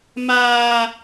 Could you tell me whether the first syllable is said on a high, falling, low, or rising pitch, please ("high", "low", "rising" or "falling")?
high